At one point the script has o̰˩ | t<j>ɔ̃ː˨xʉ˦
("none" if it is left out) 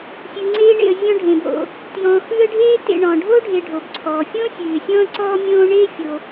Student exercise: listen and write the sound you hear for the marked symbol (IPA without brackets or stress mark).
j